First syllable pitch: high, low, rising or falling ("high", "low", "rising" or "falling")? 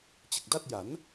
low